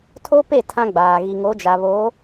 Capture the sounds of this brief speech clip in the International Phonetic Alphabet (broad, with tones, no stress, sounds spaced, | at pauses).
tʰ o˦ p e˦˨ tʰ ã˦ ɡ͡b aː˨ ɣ i˨ ŋ o˨˦ d͡ʒ a˨ β o˨˦